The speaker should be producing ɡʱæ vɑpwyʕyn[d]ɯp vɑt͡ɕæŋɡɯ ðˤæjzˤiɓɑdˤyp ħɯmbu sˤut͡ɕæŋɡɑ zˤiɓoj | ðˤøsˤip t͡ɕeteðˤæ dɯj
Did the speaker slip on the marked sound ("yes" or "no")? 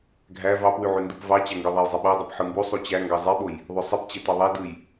no